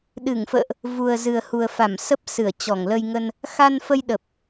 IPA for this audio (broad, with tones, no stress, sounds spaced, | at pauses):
ɗ ɨ˧˩ ŋ f ə̰ː˧˨ ʔ | v u˨˩ ə̯ z ɨ˨˩ ə̯ h u˨˩ ə̯ f a˧˩ m s ə˦˥ p̚ s ɨ˧˩ ə̯ t͡ɕ ɔ˧˩ ŋ l ə˧ j ŋ ə˧ n | x a˧ n f ə˧ j ɗ ə˨˩ p̚